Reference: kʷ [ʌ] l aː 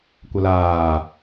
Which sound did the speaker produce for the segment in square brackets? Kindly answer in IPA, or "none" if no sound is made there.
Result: ʌ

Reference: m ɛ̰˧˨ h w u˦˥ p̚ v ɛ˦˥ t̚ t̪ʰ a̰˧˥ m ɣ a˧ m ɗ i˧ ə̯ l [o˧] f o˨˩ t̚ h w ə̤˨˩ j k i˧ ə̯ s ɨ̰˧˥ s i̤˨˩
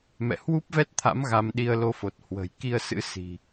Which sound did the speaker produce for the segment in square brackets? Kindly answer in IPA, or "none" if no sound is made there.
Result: o˧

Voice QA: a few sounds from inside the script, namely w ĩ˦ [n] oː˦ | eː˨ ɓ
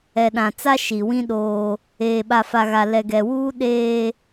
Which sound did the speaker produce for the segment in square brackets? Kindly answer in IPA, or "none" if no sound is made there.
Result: ɗ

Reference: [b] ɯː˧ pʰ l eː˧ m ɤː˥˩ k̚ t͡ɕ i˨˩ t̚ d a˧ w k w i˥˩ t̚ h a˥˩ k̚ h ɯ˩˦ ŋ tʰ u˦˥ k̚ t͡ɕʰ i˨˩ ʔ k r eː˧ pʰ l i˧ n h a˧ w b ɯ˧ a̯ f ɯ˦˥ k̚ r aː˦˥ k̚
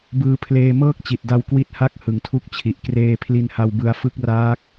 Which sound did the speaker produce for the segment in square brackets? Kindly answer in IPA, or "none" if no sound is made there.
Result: b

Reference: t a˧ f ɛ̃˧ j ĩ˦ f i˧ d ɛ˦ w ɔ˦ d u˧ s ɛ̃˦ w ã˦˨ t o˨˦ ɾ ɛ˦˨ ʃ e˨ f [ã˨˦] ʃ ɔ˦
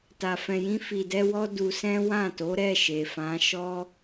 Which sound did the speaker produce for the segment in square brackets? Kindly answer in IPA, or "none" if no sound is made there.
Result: ã˨˦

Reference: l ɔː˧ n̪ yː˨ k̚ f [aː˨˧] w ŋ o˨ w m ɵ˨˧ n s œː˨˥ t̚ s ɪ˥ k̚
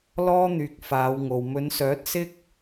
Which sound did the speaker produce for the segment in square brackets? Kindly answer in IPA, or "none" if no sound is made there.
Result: aː˨˧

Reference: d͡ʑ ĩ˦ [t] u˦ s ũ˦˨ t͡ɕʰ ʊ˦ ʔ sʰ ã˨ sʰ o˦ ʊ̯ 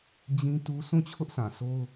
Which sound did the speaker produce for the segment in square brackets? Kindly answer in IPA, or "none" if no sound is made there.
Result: t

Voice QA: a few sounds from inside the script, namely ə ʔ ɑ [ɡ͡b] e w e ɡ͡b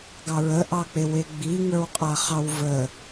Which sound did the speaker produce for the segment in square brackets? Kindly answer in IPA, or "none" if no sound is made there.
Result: k͡p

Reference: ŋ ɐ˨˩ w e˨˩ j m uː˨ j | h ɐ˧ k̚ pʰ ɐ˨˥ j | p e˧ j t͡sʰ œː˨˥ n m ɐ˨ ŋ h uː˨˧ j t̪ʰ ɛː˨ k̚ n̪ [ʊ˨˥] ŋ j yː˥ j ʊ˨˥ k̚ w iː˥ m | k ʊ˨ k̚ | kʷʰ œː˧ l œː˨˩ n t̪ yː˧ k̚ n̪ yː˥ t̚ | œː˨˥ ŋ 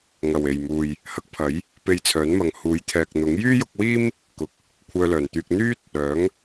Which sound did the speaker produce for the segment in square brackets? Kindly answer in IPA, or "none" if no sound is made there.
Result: ʊ˨˥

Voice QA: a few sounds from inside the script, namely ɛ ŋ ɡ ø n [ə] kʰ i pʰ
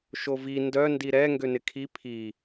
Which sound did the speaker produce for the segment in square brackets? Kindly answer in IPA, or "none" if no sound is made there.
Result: ɪ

